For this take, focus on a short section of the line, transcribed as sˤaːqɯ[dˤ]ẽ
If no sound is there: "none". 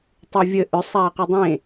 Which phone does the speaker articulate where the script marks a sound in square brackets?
dˤ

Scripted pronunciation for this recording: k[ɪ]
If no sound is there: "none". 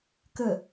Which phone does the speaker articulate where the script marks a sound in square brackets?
ə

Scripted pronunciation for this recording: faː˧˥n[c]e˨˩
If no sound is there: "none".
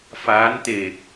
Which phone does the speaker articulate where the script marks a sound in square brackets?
t̪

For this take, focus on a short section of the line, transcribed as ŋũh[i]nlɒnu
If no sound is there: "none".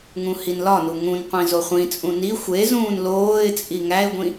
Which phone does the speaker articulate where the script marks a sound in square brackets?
i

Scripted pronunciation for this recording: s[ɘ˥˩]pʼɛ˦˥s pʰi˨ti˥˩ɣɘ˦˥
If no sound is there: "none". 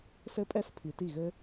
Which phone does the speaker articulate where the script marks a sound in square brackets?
ɘ˦˥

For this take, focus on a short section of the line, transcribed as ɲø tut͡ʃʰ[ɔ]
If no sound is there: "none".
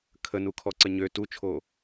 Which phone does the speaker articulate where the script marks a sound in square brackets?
o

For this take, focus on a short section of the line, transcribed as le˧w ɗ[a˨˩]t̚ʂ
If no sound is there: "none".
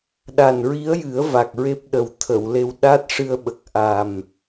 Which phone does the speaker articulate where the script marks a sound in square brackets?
a˦˥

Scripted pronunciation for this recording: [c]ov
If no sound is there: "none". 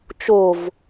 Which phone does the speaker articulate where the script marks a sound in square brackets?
t͡ʃ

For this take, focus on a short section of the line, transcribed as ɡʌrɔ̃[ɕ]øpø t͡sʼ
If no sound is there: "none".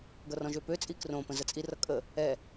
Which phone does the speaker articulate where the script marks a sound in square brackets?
ʒ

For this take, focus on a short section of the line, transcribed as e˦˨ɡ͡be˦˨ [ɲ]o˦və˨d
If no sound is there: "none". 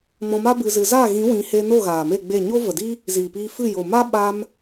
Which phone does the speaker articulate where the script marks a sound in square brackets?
ɲ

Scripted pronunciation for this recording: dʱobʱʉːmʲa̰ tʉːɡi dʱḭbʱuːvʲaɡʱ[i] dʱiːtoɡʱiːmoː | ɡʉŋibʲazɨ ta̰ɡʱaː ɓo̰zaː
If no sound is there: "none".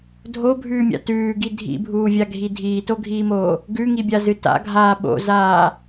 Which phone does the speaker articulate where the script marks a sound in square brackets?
i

